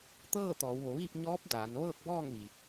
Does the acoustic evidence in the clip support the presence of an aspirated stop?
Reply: no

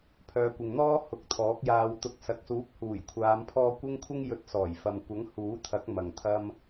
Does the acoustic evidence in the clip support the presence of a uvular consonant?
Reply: no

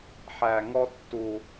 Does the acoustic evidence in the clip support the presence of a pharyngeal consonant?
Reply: yes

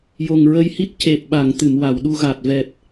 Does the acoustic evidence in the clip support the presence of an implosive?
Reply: yes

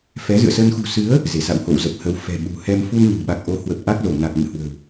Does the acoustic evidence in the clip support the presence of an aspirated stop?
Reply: no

